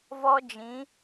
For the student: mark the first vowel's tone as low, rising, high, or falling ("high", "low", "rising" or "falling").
high